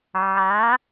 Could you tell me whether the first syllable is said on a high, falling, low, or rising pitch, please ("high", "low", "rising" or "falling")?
rising